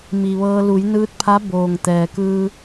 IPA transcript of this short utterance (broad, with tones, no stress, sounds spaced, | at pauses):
m i˩ ʋ ɤː˧ l u˩˧ j n ɯː˧ t̚ pʰ a˧˥ b oː˩ ŋ t̪ ɛː˩ k ɯː˧